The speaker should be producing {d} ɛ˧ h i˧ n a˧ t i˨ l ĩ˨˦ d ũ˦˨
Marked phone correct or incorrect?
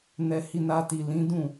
incorrect